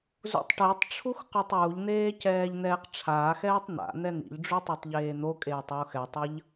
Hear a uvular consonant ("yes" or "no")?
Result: yes